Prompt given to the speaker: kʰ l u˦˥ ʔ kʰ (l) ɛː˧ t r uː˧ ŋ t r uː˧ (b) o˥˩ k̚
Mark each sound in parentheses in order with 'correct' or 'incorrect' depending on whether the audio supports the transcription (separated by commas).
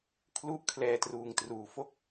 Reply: correct, incorrect